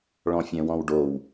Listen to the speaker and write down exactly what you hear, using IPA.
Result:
ɭ ɔ̃ fʲ ɛ̃ w ɔ̃ w ɖ o w

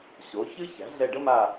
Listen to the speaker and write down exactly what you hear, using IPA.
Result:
ɕ o˩˥ ç ɨ˥ ç æ̤˩˥ ɮ ɛ˦˨ ɖ ə˥ m a˦˨

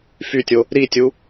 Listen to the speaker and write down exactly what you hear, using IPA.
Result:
f y tʲ o | ɾ i tʲ u

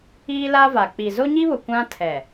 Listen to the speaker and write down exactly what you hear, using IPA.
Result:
iː˦ l a˦ v a˨ k͡p i˨ z o˦ ɲ i˦ β ʊ˨ kʷ ã˦ tʰ ɛ˨

